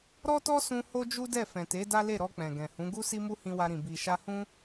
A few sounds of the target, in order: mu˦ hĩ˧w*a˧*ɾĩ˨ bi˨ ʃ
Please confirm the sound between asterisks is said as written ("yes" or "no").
yes